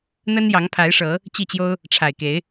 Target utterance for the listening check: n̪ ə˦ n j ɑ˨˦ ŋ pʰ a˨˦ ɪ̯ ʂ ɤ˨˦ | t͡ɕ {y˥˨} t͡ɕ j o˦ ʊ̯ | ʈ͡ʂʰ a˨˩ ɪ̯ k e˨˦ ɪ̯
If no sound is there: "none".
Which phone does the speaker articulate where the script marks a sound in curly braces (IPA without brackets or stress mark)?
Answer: i˥˨